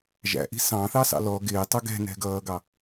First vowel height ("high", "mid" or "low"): low